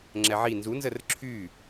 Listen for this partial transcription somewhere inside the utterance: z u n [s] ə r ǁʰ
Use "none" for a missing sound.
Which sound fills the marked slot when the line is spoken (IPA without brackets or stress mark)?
z